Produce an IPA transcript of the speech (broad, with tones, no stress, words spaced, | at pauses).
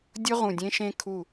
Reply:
dʲʊ˦˥ ʁũ˧˩dʲẽ˦˥ʃẽ˦˥ kʰu˧˩